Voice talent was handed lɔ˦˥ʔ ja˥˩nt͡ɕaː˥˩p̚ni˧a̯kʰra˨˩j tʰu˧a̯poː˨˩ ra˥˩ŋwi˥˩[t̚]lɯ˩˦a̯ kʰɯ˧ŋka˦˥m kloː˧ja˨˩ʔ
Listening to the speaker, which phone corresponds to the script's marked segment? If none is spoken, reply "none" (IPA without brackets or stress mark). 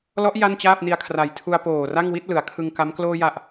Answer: t̚